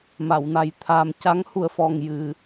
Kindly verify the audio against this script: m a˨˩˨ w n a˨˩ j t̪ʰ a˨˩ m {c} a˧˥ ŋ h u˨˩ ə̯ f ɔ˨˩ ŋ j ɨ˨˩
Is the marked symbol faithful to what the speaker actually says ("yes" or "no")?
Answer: yes